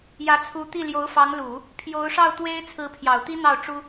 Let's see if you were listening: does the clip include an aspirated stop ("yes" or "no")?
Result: yes